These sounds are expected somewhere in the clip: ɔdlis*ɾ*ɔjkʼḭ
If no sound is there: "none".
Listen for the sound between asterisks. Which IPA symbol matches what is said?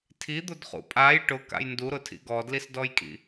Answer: d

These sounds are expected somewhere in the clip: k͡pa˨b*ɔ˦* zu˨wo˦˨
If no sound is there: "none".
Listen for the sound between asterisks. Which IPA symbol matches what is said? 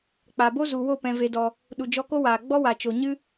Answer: o˦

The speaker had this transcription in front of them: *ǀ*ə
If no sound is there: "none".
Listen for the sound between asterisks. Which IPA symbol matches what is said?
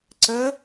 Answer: ǀ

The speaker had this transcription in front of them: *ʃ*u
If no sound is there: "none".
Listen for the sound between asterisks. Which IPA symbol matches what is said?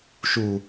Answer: ʃ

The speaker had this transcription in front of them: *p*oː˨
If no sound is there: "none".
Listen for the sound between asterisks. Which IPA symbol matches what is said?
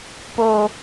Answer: p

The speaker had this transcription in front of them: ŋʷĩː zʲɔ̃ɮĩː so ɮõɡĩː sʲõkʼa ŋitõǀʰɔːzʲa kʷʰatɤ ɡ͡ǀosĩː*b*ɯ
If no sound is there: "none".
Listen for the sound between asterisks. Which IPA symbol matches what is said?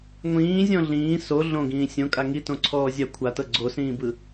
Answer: b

